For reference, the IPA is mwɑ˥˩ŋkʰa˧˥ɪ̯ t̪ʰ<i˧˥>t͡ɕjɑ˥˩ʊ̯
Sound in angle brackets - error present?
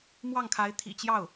yes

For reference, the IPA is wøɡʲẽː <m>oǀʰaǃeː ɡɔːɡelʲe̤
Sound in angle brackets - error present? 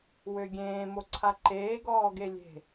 no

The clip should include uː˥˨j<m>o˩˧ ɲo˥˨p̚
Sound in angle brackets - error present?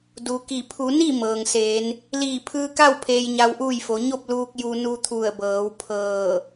yes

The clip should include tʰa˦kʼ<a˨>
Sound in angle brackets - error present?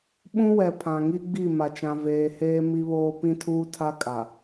no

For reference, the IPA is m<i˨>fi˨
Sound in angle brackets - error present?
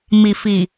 no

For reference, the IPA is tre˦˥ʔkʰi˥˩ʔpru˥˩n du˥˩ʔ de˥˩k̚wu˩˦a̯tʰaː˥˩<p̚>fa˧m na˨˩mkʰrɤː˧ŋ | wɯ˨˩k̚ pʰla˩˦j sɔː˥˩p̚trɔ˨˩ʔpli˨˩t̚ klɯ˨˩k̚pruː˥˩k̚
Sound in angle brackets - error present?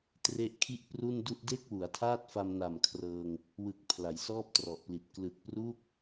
yes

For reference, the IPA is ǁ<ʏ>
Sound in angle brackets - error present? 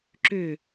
no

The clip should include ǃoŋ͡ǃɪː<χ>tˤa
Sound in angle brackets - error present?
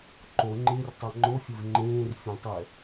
yes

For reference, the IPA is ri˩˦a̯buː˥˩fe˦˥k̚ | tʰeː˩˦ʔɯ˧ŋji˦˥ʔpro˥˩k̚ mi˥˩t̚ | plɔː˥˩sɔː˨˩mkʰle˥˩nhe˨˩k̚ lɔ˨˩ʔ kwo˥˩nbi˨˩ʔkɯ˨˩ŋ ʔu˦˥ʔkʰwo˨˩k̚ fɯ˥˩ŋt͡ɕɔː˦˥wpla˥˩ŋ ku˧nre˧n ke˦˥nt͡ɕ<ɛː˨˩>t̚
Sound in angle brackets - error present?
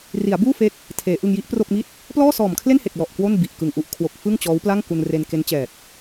no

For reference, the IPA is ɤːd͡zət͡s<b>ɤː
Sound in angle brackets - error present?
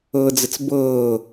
no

